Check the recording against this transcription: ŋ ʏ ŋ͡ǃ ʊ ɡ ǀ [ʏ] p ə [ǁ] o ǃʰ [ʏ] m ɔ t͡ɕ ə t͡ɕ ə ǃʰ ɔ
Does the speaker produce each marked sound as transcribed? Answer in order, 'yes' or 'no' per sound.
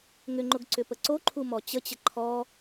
yes, no, no

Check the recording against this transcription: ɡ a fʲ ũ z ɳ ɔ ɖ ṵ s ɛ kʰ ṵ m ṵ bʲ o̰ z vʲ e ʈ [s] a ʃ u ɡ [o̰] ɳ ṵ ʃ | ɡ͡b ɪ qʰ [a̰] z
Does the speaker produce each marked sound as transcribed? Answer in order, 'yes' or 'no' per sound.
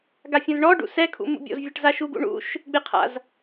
no, no, yes

